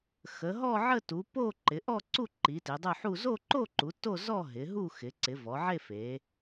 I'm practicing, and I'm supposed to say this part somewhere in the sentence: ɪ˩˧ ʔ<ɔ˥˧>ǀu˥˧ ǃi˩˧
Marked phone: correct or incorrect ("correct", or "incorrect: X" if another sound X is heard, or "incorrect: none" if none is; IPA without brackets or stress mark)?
correct